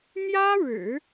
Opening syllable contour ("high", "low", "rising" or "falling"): high